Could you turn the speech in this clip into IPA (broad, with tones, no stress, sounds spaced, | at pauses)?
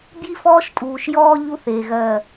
b j i˦ f ɔː˦ ʃ tʼ uː˨ ʃ j ɔː˦ ʎ u˦ θ eː˨ ɣ ɜ˦˨